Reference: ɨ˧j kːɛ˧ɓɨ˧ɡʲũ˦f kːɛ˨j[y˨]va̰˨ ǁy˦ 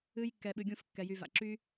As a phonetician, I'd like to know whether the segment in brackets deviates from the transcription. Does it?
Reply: no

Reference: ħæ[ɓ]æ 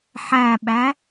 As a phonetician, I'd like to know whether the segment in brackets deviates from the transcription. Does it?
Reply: no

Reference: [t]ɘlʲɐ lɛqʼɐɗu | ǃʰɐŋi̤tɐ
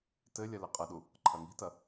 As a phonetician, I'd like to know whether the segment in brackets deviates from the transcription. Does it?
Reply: no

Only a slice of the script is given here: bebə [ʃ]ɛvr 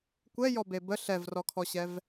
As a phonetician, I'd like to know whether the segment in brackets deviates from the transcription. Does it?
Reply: yes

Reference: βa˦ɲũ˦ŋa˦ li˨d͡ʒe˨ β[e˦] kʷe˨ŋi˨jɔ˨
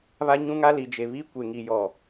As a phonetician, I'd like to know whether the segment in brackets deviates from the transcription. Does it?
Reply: yes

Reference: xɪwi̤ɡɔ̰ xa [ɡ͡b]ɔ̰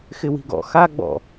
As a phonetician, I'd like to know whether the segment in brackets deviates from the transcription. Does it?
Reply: no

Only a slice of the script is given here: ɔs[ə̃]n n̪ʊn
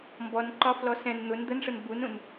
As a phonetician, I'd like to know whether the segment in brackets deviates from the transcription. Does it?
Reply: yes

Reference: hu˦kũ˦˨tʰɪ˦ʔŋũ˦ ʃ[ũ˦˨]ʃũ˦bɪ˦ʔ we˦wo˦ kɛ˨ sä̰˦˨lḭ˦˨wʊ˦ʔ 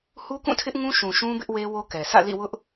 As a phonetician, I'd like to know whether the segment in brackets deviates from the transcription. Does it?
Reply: yes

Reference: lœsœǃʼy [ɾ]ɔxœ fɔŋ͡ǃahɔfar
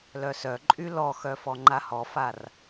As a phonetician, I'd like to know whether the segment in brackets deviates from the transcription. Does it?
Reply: yes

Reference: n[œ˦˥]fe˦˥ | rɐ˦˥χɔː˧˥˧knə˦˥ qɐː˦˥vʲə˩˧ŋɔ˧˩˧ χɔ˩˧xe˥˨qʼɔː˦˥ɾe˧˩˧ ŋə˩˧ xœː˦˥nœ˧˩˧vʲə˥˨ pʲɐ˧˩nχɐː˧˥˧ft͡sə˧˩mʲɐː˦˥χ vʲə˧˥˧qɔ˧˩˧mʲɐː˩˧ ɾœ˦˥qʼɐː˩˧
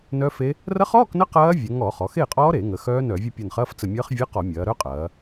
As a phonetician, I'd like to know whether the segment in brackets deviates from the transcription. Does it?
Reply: no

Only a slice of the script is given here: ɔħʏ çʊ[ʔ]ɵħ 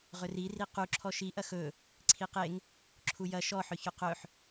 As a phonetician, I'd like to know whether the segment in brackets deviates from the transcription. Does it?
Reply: yes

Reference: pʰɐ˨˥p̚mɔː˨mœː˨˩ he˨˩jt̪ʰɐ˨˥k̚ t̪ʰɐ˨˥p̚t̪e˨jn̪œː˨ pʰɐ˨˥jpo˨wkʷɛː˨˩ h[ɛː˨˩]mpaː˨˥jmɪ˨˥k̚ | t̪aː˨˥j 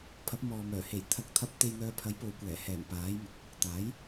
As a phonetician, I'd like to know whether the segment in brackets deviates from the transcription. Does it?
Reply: no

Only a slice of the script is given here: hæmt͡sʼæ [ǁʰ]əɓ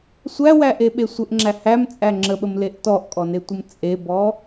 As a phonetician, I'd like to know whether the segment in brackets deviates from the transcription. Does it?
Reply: yes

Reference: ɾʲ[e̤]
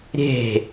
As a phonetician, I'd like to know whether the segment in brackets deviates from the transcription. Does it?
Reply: no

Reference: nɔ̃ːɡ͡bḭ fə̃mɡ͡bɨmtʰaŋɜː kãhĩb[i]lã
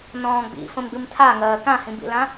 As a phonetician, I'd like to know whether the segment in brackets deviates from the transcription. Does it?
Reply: yes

